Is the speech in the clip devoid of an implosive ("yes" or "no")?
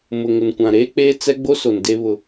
yes